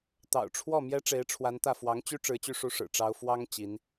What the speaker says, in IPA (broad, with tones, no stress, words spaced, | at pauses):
t̪ɑ̰˨˩ʊ̯ʈ͡ʂʰwɔ˥˩ mjɛ˥ʈ͡ʂe˧˥ɪ̯ʈ͡ʂʰwa˧˥nt̪ä˥˩ fwɑ˧˥ŋt͡ɕy˥ ʈ͡ʂɻ̩˧˥t͡ɕy˥˩ʂu˥ʂɻ̩˨˩ ʈ͡ʂɑ˥ʊ̯ fwɑ˥ŋ t͡ɕi˧˥n